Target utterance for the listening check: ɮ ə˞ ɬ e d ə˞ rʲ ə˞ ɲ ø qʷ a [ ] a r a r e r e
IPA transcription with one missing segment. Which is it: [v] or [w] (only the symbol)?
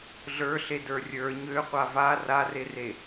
v